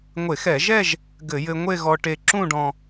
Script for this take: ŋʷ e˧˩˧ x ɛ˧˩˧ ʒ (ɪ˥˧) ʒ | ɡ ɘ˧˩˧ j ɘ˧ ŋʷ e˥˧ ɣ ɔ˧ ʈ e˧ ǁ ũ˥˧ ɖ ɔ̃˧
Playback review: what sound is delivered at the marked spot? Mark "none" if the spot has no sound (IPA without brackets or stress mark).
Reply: ɛ˥˧